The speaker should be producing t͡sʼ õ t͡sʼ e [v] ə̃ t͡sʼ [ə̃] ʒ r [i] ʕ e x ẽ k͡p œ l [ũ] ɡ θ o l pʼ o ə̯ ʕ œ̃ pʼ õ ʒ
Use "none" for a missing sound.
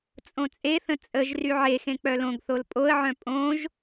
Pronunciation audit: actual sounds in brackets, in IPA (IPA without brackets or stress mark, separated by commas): θ, ə, y, õ